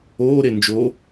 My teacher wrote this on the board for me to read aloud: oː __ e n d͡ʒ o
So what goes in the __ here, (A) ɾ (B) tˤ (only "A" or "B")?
A